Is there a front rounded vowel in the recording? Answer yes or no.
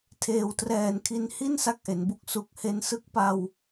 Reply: no